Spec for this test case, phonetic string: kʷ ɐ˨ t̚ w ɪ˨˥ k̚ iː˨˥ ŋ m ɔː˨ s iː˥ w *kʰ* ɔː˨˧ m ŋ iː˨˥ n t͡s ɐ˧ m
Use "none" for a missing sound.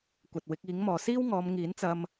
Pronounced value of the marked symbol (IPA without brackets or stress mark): ŋ